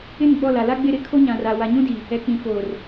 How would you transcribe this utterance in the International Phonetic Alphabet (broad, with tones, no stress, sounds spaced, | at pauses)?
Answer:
ɪ˦˨ n ɡ͡b ɔ˦˨ l a˨ l a˦ ɡ͡b ɪ˦˨ ɾ ɪ˦ kʰ o˦ ɲ ã˨ r a˨ w a˨ ɲ ũ˦ d i˨ | ɛ˨ k͡p ĩ˨ f oː˨ r